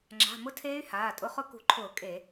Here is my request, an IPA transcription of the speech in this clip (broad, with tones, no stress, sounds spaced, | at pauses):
ŋ͡ǁ a̤˩˧˩ m ʊ˦˥ tʰ eː˦˥ y̯ h aː˩˧˩ tʼ ʊ˦˥ χ ʊ˦˥ k ṳ˧˩˧ ǃʰ ʊː˧˩˧ kʼ e˧˩˧